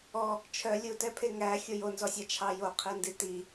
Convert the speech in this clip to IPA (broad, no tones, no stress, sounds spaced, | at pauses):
ɔ | t͡ʃʰ œ lʲ u t ɛ pʰ e ŋ æ xʲ o j o n z ɔ sʲ ɑ t͡ʃʰ ɑ j o qʰ i n d i t i